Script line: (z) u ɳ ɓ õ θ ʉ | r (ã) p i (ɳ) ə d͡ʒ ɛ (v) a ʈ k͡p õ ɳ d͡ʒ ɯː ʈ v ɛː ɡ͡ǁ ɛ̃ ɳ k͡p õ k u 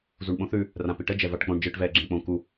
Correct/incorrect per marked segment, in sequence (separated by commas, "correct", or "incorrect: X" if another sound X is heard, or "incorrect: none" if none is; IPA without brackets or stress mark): correct, correct, incorrect: ʈ, correct